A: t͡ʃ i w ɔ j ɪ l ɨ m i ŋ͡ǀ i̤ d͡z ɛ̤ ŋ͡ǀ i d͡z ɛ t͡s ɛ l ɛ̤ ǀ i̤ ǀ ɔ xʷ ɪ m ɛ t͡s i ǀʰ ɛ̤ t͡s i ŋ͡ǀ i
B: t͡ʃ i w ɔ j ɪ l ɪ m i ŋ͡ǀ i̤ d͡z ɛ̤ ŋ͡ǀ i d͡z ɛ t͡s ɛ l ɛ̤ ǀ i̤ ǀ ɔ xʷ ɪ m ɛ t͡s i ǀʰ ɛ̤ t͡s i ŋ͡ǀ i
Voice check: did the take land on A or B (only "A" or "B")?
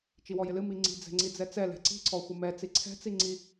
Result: A